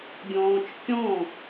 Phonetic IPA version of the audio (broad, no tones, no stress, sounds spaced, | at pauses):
ɡʲ ɔ̃ː t͡ʃ kʲ ɔ̃